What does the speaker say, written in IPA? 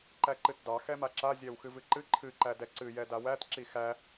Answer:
ǃ æ ǃ ɨ t d ɑ x ɛ m a ǁ a zʲ ɛ w x ɨ v ɨ ǃ ɨ ǃʰ ɨ ǃ æ d ɛ ǀ ɨ j ɛ d a w æ t ǁ i x æ

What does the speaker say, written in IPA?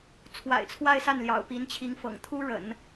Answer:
t͡sʰ w a̰˨˩ ɪ̯ t͡sʰ w a˥˧ ɪ̯ s a˥˩ n l j ɑ̰˨˩ ʊ̯ p i˧˥ n t͡ɕʰ i˧˥ ŋ f ɤ̰˨˩ ŋ t̪ʰ u˥ ɻ ə̰˨˩˦ n

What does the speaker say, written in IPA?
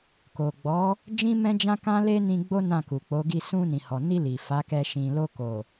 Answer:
k o˨ ɡ͡b ɔ˨˦ | d͡ʒ ĩ˦ m ɛ̃˦ d͡ʒ ã˦ k ã˦ l e˦ n ĩ˧ ɡ͡b o˦ n ã˦˨ k u˨ k͡p o˨˦ ɡ i˦˨ s ũ˧ n ĩ˨ h ɔ˨ n i˧ l i˨ f a˨˦ k ɛ˧ ʃ ĩ˨ l o˧ k o˨

